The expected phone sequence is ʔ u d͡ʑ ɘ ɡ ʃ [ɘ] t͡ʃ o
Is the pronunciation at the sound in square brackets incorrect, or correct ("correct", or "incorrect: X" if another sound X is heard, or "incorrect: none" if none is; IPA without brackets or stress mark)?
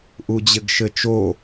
correct